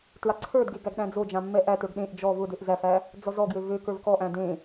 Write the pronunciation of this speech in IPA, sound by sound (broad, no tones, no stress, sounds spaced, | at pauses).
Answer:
t ɹ a ǀʰ ə˞ d ɡ e ɡ æ ɡ ɗ æ̃ d͡z o d͡ʒ ã mː ɛ ʔ æ t ə˞ ɡ ɗ ẽ ʔ d͡ʒ ɔ v ʊ d ø ʔ z æ f æ | d͡z ɔ z ɔ ɡ j ø v ø k ə˞ v k ɔ ʔ æ̃ d ẽ